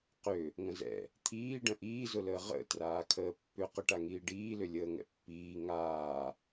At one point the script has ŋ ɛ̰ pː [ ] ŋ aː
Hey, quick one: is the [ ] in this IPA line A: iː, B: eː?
A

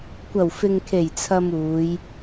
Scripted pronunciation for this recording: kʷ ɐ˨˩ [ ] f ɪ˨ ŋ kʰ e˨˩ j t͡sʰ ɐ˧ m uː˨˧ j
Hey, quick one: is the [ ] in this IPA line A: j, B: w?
B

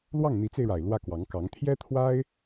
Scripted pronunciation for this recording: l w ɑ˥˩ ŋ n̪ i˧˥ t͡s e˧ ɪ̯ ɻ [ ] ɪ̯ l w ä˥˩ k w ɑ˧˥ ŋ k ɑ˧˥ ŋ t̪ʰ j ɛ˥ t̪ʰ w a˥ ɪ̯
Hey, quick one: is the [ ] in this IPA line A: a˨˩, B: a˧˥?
A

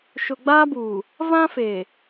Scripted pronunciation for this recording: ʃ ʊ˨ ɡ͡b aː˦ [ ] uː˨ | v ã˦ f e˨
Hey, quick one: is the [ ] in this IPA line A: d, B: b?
B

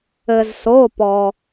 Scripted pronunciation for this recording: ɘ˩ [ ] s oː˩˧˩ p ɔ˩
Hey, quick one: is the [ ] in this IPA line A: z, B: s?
A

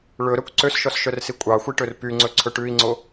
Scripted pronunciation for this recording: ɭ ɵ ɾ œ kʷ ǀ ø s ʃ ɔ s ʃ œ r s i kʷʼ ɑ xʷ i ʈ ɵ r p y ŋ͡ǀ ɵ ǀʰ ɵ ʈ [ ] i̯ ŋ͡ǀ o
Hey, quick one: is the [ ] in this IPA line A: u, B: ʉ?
B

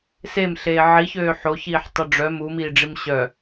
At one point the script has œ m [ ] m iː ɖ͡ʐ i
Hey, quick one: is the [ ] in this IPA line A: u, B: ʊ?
A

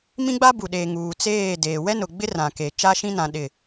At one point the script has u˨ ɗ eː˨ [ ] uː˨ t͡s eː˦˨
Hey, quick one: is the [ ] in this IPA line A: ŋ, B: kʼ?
A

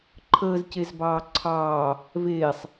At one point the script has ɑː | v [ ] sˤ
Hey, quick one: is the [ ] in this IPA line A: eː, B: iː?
A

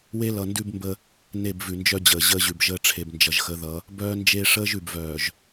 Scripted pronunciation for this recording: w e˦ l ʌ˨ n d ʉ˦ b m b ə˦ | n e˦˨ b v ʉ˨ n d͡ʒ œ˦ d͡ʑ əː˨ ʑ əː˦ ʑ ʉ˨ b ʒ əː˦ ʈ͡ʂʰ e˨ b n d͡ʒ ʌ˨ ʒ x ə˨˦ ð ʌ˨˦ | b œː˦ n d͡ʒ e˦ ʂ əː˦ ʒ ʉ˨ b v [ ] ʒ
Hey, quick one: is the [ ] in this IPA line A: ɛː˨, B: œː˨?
B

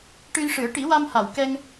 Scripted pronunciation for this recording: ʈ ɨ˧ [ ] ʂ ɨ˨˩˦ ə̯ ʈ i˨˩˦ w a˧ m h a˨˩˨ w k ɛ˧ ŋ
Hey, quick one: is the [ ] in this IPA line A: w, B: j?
B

